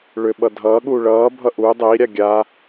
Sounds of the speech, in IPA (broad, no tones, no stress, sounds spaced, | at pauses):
ɭ ʏ ɓ ʌ dʱ ʌː ɠ uː ɭ ʌː bʱ ʌ ʔ u dˤ e i̯ ɾʲ a ɡʲ a